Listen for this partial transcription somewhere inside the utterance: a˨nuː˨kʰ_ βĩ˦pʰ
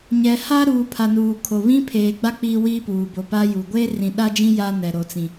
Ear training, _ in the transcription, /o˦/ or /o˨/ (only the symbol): o˨